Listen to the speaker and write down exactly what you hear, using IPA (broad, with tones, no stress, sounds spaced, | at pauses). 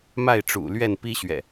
m a˥˨ ɪ̯ ʈ͡ʂ ṵ˨˩ l ɥ ɛ˥˨ n p i˦ ɕ ɥ ɛ̰˨˩